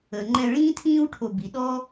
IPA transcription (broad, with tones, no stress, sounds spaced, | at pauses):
ə˩ ŋ͡ǃ ɛ̃˧ ɭ ĩː˥ tʰ ĩː˥ w ʈʰ o˧ b i˩ ɗ ɔ˥